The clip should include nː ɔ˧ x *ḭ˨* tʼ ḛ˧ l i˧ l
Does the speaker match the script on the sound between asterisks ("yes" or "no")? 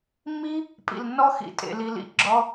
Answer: yes